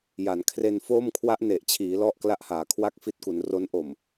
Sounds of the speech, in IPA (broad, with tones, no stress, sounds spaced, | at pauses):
j a˩˦ n kʰ r e˧ n f o˥˩ m kʰ w a˦˥ ʔ n e˨˩ ʔ t͡ɕʰ iː˩˦ l ɔ˥˩ ʔ k l a˥˩ ʔ h aː˩˦ kʰ w a˥˩ k̚ f i˦˥ t̚ k u˩˦ n r o˦˥ n ʔ o˨˩ m